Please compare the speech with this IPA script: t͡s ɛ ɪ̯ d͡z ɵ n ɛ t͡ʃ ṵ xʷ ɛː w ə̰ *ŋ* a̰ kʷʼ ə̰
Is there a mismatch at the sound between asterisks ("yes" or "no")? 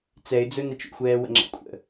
yes